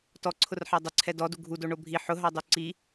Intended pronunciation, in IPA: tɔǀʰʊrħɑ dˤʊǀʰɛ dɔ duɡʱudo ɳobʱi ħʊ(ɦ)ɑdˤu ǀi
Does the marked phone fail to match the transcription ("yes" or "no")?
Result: no